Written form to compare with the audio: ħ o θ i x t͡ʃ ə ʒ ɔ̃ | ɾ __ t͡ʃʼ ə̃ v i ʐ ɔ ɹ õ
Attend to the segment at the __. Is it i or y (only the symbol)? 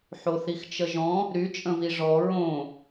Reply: y